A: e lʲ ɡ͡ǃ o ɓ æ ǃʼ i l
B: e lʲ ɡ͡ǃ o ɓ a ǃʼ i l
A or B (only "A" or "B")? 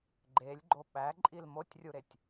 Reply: A